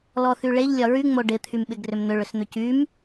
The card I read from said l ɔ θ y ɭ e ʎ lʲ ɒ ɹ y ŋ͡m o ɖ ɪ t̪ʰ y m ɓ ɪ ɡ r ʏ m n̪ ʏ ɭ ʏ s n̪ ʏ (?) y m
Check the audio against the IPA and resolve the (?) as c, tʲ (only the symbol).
c